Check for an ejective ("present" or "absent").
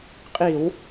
present